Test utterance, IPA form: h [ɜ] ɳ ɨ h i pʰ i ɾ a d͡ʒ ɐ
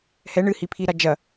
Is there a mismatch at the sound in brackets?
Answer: yes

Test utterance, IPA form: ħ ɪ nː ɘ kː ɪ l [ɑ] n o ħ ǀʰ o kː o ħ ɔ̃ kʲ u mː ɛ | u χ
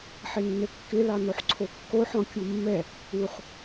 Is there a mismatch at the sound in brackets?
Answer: no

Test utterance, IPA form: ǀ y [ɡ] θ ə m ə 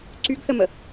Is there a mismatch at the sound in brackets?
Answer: no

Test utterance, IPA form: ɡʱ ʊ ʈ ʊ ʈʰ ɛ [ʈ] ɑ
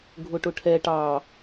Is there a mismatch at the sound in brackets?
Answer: no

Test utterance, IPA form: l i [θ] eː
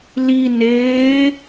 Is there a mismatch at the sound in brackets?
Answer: yes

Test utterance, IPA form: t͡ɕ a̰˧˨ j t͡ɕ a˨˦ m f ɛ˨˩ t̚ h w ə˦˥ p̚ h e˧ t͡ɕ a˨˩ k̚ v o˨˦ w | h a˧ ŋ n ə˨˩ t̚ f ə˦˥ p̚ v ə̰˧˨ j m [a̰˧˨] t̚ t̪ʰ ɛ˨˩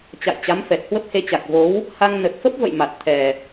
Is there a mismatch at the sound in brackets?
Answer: yes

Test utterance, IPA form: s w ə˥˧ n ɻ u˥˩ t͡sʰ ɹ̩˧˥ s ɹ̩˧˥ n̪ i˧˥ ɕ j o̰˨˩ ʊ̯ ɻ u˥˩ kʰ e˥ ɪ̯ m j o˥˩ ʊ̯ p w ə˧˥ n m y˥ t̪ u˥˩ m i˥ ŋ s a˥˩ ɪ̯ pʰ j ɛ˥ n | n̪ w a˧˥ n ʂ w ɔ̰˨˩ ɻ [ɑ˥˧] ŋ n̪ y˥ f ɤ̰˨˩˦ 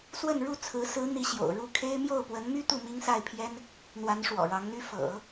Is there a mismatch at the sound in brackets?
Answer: yes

